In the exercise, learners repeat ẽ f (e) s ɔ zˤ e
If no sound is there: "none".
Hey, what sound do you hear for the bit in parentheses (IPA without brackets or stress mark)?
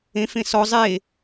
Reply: ẽ